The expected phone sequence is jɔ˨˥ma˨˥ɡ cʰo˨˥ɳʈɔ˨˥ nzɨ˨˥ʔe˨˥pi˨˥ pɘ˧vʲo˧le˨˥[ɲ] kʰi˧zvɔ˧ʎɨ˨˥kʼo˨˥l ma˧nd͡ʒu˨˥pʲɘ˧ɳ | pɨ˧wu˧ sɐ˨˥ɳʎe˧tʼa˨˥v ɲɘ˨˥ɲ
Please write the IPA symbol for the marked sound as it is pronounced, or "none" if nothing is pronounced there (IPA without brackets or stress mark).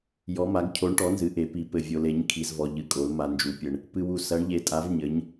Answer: ɲ